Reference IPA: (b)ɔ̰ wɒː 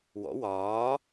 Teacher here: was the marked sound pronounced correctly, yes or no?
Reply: no